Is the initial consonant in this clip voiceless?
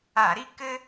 no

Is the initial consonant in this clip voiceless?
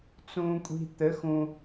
yes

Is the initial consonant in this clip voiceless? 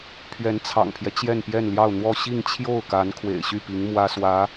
yes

